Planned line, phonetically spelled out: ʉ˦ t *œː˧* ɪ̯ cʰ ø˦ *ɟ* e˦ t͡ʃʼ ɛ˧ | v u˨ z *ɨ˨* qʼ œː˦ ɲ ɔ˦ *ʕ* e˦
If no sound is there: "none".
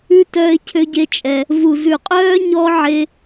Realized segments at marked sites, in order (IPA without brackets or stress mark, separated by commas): œː˦, ɟ, ʉ˨, ʕ